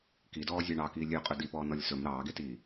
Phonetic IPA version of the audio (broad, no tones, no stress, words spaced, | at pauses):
kidɔː zʲɑɳɑkiː lʲøqʼɵ dipɔː nɔlʲsɵm ɾɑːɡetiː